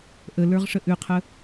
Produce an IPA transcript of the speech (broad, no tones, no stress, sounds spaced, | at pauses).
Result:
ʔ ə l ə˞ ʁ ʂ ə ʔ ʉ qʰ ə